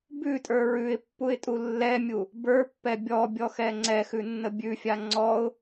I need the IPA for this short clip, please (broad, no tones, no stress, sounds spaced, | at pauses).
b ʉ tʼ ə˞ ɹ ʉ ɪ̯ pː u ɪ̯ tʼ u lː ɛ mʲ u | b ə˞ pː ɛ bʲ ɔ bʲ ɔ x ɛ ŋ͡ǀ ɛ x ʉ nː ə bʲ ʉ fʲ a ŋ͡ǀ ɔ ʊ̯